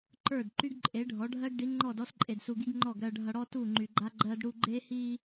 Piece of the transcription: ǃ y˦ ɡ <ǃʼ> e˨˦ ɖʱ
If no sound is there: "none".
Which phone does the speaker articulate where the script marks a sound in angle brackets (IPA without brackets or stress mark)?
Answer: ǃʼ